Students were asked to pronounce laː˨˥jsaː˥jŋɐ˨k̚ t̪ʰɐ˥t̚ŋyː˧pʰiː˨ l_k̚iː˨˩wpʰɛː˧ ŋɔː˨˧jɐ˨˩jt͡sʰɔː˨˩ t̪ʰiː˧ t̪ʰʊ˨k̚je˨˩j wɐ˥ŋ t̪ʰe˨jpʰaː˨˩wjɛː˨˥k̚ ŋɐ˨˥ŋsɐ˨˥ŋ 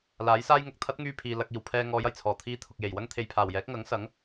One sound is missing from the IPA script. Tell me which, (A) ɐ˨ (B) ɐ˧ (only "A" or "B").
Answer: B